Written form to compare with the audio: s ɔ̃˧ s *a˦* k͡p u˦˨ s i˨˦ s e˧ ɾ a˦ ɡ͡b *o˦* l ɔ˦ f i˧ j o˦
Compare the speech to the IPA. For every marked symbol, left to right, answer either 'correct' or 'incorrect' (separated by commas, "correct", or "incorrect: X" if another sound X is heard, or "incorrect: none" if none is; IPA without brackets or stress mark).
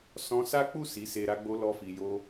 correct, correct